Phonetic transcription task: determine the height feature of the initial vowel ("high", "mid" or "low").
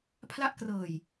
low